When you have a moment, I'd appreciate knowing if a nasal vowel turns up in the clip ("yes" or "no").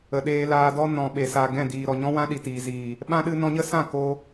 yes